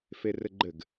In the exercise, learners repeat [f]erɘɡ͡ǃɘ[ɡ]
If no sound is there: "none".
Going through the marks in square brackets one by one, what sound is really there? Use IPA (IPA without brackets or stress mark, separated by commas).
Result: f, ɡ